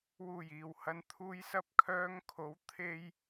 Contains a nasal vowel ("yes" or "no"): no